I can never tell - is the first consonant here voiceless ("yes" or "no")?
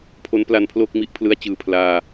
yes